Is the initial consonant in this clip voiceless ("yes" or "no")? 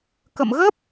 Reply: yes